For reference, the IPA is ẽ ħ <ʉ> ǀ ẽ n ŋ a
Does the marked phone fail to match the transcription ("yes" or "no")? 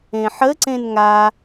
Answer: yes